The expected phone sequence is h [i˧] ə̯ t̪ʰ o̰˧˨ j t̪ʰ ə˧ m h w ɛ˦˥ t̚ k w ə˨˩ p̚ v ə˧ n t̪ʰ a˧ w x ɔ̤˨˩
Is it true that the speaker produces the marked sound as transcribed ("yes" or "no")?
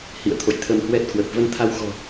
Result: no